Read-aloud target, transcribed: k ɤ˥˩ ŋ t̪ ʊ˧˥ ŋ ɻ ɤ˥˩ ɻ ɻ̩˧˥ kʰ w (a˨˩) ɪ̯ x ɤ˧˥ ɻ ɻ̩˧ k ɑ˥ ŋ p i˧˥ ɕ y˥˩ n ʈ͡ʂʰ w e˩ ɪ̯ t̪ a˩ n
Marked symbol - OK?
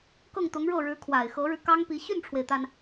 yes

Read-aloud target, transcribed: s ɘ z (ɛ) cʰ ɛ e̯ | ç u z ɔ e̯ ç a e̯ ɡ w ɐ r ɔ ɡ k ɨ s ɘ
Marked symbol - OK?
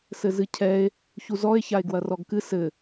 no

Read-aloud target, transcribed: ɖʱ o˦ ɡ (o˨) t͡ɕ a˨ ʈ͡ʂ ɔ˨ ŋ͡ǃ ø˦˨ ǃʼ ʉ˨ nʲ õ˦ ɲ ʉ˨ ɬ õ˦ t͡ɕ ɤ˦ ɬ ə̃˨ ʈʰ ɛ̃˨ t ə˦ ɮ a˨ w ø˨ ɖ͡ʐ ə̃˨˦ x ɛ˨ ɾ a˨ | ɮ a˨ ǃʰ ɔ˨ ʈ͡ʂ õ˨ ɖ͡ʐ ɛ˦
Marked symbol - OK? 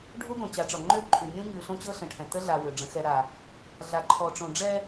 no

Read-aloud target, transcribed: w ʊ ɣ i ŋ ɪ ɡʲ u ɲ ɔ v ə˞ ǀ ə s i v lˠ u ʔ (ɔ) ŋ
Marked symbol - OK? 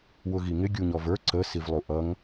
no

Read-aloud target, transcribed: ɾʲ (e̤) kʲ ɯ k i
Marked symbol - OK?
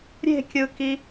yes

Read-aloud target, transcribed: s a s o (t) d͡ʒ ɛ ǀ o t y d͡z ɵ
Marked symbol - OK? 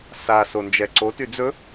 no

